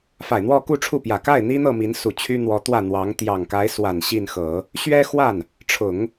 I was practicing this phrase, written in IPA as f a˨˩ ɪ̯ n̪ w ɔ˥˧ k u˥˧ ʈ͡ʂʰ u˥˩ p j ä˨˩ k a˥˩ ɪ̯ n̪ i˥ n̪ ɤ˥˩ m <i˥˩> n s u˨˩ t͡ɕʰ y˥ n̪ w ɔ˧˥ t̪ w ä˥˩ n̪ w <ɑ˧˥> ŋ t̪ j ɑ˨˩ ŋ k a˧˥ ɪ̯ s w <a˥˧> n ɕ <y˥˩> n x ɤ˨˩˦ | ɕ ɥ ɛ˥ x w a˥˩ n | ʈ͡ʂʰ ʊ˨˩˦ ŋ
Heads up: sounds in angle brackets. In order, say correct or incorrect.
incorrect, correct, incorrect, incorrect

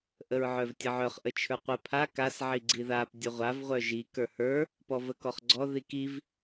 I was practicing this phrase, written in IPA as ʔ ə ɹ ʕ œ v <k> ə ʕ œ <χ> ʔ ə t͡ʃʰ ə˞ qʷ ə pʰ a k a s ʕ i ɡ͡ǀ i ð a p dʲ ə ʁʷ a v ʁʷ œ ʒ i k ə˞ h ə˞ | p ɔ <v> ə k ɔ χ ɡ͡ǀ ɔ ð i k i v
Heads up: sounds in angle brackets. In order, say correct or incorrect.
incorrect, correct, correct

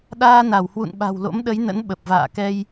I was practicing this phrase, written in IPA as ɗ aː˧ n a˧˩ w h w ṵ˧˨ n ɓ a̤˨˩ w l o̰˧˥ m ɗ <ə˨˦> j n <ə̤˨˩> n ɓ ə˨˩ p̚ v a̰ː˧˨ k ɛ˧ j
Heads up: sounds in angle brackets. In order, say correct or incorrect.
correct, incorrect

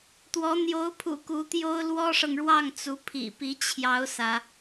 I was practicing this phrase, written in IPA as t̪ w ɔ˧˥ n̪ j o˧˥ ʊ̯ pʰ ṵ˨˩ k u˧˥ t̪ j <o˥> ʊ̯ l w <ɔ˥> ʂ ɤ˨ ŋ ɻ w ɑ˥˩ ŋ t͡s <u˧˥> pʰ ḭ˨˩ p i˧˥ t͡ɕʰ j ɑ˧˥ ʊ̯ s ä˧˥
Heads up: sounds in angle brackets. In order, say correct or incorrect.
correct, correct, correct

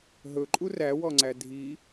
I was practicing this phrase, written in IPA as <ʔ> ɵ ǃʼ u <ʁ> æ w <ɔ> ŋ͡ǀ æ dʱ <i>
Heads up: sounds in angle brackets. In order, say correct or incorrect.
incorrect, incorrect, correct, correct

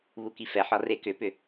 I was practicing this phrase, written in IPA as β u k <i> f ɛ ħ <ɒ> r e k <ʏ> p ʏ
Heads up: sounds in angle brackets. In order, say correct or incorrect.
correct, correct, correct

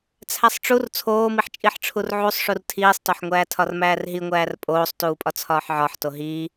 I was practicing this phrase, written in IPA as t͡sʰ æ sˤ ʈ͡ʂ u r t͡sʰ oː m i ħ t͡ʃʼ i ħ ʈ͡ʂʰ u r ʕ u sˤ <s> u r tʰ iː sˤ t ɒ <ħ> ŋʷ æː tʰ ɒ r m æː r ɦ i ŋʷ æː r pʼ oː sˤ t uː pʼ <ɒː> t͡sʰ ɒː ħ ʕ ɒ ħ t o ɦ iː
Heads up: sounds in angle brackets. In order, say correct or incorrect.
incorrect, correct, incorrect

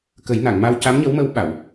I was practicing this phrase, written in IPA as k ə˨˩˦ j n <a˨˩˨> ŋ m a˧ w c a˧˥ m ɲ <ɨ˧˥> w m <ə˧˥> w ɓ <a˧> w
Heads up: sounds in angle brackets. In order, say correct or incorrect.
correct, incorrect, correct, incorrect

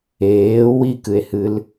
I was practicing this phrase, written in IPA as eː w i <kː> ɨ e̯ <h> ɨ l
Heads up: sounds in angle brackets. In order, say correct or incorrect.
incorrect, correct

